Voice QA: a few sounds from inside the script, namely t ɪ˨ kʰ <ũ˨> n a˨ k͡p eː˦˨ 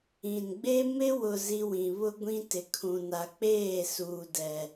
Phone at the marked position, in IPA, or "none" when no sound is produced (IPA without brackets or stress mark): ũ˨